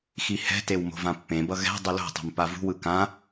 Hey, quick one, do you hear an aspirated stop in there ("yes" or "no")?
no